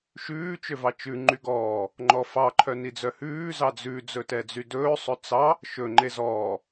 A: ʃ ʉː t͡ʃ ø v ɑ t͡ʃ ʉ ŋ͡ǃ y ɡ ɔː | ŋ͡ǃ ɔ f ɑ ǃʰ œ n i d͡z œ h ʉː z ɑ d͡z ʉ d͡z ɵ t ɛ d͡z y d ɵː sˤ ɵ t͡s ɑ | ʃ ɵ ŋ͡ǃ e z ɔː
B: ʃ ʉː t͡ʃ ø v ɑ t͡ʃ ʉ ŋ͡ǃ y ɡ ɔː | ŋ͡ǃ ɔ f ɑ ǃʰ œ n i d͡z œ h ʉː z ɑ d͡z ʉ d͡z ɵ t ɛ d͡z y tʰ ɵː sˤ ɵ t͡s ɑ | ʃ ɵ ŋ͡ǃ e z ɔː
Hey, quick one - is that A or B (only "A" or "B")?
A